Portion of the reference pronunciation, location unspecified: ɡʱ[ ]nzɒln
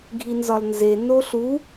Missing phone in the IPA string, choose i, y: i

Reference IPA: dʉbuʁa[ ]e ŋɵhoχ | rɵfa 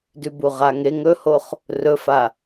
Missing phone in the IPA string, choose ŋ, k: ŋ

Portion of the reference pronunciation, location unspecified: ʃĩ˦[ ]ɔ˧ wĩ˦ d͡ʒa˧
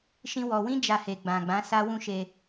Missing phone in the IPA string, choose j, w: w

